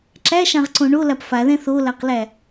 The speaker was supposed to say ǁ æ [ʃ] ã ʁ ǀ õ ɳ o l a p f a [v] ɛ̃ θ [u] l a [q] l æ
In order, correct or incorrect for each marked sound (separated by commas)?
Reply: correct, incorrect, incorrect, correct